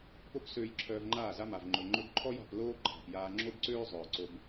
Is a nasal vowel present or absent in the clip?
absent